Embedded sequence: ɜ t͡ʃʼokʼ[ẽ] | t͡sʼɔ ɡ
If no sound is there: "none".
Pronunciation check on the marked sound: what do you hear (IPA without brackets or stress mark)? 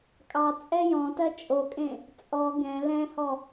ẽ